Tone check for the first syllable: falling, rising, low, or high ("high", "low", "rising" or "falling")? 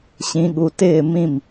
low